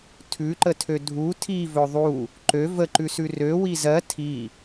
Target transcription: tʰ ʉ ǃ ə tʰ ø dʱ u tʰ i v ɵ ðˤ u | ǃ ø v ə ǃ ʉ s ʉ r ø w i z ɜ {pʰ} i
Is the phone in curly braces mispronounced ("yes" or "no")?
yes